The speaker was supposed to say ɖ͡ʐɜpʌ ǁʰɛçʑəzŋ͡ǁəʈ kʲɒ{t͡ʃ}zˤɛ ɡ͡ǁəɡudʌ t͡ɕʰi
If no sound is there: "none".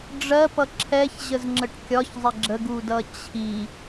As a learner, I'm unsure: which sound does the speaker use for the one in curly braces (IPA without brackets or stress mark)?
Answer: ç